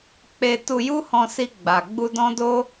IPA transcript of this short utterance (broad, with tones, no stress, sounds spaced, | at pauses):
k͡p e˧ t u˧ j u˦ h ɔ̃˧ s i˧ ɡ͡b a˨ ɡ͡b u˧ d ɔ̃˦ d o˦